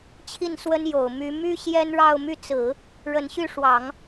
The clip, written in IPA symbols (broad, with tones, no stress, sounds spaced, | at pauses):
t͡ɕʰ i˥˩ n s w ə˥ n j o˨˩ ʊ̯ m y˧˥ m y˥ ɕ j ɛ˥ n ɻ ɑ˥˧ ʊ̯ m y˥˩ t͡s ɹ̩˨˩˦ | ɻ ə˧˥ n ɕ y˥˩ ʂ w ɑ˨˩˦ ŋ